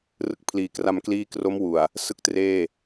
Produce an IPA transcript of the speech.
r ɯ˨˩ k̚ pʰ l iː˩˦ k r a˧ m k l iː˦˥ k r o˦˥ m w u˨˩ a̯ | s ɯ˥˩ k̚ t r eː˥˩

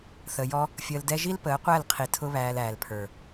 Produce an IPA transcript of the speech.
θ ə˨ j ɔ˧ | fʲ əː˧ l d ɛ˦ ʒ i˦ l p əː˨˦ qʷ æ˦˨ l qʰ i˨ tʰ ʊ˦ β æː˧ l æː˨ l pʰ ə˞˨

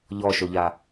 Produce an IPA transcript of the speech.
ʎ ɔ ʃ o ʎ a

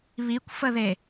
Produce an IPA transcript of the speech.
β i kʷ f ə ð e

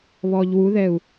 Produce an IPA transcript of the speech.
β ɔ ʎ w u ð ɛ u̯

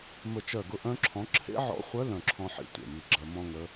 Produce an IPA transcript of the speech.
m ə˦˨ t͡ʃ ɜ˦˨ ɡ ʊ˥ ʔ œ̃˥ ǁʰ ɔ̃˧˥ ǁʰ ḛ˥ ʕ ɔ̰˧˥ χʷ œ˧˥ l œ̃˦˨ ǁʰ ɔ̃˥ ħ ḭ˥ tʷ ḛ˦˨ m i˦˨ ɡ͡ǁ ɜ˥ m ɔ̃˥ ŋ ə˧˥

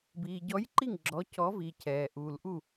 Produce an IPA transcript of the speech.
b iː˨ ɟ ɔ˧˥ j ǃ i˥˨ ŋ ɡ͡ǁ ɔ˧˥ cʰ ɔ˧˥ v i˨ cʰ ɛː˨ ʔ uː˨ l ʔ u˥˨

